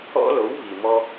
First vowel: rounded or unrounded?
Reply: rounded